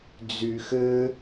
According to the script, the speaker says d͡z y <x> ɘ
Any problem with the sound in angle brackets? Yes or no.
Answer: no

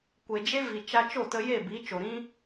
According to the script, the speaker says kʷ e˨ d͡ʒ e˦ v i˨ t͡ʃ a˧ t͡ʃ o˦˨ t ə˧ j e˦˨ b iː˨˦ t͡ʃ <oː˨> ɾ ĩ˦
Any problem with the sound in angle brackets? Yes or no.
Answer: yes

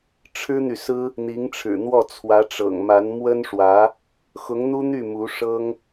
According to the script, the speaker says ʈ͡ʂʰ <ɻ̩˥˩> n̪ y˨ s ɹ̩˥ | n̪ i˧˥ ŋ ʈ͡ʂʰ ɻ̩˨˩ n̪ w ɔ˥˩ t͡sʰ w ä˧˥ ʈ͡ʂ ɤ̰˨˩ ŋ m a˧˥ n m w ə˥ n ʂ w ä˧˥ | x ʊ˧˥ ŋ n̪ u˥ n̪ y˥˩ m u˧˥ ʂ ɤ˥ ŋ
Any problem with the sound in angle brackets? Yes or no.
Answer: yes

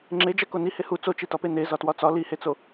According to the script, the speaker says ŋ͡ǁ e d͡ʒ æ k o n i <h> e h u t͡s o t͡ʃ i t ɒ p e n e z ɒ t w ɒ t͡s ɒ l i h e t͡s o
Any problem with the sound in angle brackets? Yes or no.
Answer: no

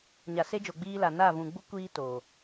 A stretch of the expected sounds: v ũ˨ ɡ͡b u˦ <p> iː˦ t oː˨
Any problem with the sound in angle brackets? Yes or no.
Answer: yes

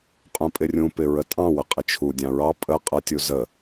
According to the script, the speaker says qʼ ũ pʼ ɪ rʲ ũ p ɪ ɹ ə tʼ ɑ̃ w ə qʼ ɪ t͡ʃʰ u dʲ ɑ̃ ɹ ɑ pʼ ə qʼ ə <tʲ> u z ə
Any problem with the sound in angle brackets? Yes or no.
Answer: no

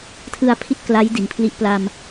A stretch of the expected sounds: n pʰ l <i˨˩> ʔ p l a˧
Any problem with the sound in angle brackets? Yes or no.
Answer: yes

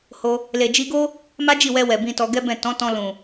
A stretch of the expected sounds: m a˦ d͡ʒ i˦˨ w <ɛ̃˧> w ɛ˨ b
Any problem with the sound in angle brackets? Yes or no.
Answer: yes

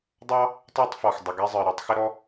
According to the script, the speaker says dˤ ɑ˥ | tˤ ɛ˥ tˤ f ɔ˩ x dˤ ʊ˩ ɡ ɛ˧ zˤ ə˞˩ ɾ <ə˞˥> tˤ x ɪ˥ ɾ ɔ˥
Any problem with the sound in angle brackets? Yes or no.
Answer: yes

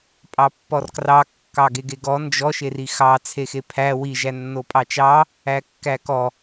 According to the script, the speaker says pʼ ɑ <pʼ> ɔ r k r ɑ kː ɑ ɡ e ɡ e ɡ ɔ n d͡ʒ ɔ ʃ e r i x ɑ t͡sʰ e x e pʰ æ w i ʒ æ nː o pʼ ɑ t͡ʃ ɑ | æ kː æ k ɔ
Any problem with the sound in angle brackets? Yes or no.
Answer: yes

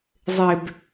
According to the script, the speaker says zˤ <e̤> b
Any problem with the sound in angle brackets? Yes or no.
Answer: yes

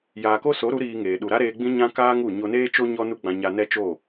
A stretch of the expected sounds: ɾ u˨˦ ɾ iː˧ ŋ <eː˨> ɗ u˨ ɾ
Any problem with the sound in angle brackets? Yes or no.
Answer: no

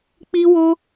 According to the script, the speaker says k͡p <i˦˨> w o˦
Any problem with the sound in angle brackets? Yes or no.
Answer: yes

